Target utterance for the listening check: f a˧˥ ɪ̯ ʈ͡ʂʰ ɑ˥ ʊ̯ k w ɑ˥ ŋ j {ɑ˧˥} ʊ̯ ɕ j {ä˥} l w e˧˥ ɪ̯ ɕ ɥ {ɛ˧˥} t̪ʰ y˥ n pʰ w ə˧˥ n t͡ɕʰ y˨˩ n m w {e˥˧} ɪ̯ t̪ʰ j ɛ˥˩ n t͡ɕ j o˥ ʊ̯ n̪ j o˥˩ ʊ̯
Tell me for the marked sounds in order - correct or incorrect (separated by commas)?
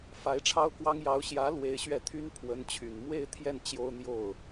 correct, incorrect, incorrect, correct